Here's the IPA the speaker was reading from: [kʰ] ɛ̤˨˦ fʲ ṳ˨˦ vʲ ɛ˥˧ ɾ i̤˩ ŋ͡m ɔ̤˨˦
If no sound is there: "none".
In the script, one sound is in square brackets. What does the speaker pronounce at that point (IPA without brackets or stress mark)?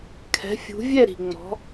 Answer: kʰ